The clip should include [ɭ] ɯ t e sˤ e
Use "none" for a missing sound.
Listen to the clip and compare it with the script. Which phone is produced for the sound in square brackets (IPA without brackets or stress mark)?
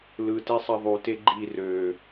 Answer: l